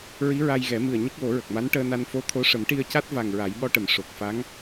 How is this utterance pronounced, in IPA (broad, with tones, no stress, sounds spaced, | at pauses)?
ɹ i˧˥ ɹ a˧ j ɣ ɛ˨˩˦ m ɨ˨˩ ə̯ ɲ ə˦˥ k̚ w o˨˩˦ ɹ ə˨˩ k̚ m a˧˥ n ʈ əː˧ n a˧ n f o˧ t̪ʰ o˧˥ ʂ ə˨˩˦ m ʈ i˧ ə̯ c a˦˥ t̚ v a˨˩ ŋ ɹ a˨˩˦ j ɓ ɔ˧ ʈ ə˨˩˨ m ʂ o˨˩ k̚ f a˧˥ ŋ